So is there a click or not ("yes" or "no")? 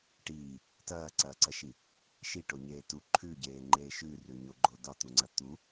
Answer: yes